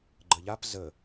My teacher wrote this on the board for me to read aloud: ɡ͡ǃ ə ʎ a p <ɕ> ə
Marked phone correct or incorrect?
incorrect